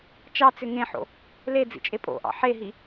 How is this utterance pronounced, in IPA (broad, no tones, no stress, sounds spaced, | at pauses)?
t͡ʃ ɑ t͡s ʏ ŋ ẽ ħ o̰ | l e d͡z ḭ t͡ʃʼ e pʼ o̰ ʔ ɑ̰ ħ e ɦ i